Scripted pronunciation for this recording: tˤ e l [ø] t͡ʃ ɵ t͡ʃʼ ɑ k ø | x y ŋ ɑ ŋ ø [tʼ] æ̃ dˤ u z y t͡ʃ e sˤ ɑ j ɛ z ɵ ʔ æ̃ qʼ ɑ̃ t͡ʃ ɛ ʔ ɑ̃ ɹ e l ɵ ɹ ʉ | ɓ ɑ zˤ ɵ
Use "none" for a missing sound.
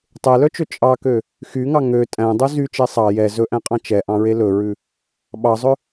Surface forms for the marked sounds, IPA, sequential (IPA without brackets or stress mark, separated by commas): œ, tʼ